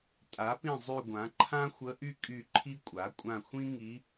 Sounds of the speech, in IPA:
tʼ a˩˥ p ĩ˦˨ zˤ y˦˨ ɡʷ ã˩˥ ǃʰ ã˥ xʷ ə˧˥ ʔ y˥ kʼ y˦˨ ǃʰ i˥ kʷʼ a˩˥ kʷʼ ã˦˨ xʷ ĩ˥ ŋ i˧˥

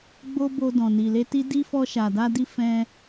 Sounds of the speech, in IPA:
ɡ͡b o˦ b o˧ d ɔ̃˨ n i˨ l e˧ t i˦ d i˦ f ɔ˧ ʃ a˨ d a˧ d i˧ f ɛ̃˧

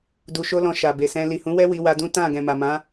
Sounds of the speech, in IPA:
d u˧ ʃ o˦ l ɔ̃˧ ʃ a˨ b e˨ s ɛ̃˧ l i˨ h ũ˨˦ w ɛ˦ w i˧ w a˧ d ũ˦ t ã˦˨ ɡ ɛ̃˨ m a˨ m ã˨˦

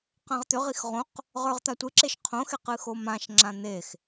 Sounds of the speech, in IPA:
q ã ʁ t̪ ʏ ʁ i x ʁ õ q | ʁ ə˞ ʁ t̪ a tʷ ɨ ǁ e ʃ qʰ õ x e q ɨ x o m ã ʃ ŋ͡ǁ ã n̪ e x

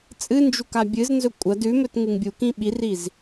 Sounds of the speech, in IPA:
t͡sʼ ɨ n d͡ʒ u k a bʲ ɨ z n z ɵ kʷʼ ɐ d ʉ m ɵ t ŋ ɨ ŋ bʲ u k ĩ ɓ i r i z

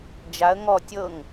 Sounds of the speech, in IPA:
d͡ʒ a ə̯ ŋ ɔ tʲ ɤ ŋ

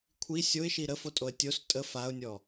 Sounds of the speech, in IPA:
kʷʰ i sʲ o ɪ̯ ʃ i ɾ ə f o tʼ o ə̯ tʲ o s tʼ ə f a ʊ̯ nʲ ɔ

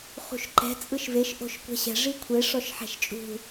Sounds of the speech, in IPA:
χ ṳ ʃ ǃ ɛ̤ t͡sʼ ɯ ʃ v e ʃ ʔ o̤ ʃ kʷ ɛ̤ ɕ ɛ̤ ʐ i kʷʰ e ʂ ɔ ʃ ħ ɛ̤ ʃ t͡ʃʼ ṳ

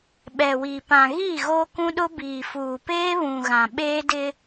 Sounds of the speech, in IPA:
ɓ ɛ˨ w i˨ p ã˨ ɣ iː˦˨ ɣ oː˦ k ũ˦ ɗ ʊ˦ b iː˨ f uː˨ p eː˦ β ũ˨ ɣ ã˨ ɓ eː˦ d ɪ˦

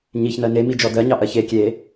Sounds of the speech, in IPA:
ɲ i ç n ɜ n e m i d͡ʒ ɔ d ɜ ɲ ɑ ʔ ɜ ç e kʲ e

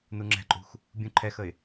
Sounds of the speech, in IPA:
n u ŋ͡ǁ ɛ̤ ǃʼ ṳ x | bʲ ũ ǃʰ ɛ x ə ɪ̯

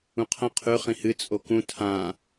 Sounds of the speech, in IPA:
ũ qʰ ɐ̃ qʰ ʉ χ ĩ h ɨ t͡sʼ o k ũ tʰ ã

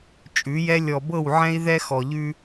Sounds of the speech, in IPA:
t͡ʃʼ ʉ˨˦ j ɛ˦ lʲ ɔ˨ b ɤ˦˨ w ʕ ɛ̃˦ i̯ ð ɛ˦ x ɔ˨ ʎ ʉ˦

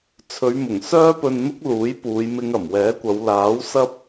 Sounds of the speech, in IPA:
t͡sʰ ɵ˨˧ ɥ m ʊ˨˩ ŋ s œː˥ p ɵ˧ n n̪ ʊ˥ k̚ l uː˨˥ j p uː˨˧ j m ɪ˧ ŋ ɐ˨˩ m w ɛː˨˥ kʷ ɐ˨˧ w l aː˨˥ w s ɐ˥ p̚

